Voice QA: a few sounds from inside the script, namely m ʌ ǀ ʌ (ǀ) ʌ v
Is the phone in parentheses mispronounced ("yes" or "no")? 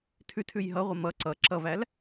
yes